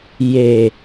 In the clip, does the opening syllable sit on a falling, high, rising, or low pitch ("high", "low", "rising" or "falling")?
low